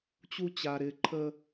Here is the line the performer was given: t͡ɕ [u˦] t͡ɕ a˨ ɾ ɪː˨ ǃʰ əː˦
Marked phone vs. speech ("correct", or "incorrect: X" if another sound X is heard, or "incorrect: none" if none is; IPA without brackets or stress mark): correct